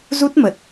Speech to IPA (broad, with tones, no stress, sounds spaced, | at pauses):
z u˦˥ t̚ m ə˨˩ t̚